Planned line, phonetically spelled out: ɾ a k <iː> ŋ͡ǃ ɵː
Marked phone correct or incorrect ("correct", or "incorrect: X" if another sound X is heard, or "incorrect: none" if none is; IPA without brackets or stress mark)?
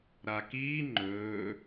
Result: correct